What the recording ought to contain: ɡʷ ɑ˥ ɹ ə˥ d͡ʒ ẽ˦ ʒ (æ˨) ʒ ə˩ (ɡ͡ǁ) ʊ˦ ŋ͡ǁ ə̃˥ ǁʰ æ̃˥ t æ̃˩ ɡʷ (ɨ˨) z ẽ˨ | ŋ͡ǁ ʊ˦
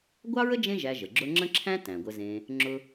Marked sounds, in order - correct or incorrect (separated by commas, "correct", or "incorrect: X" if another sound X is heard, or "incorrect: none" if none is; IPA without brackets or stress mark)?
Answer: correct, correct, incorrect: ə˨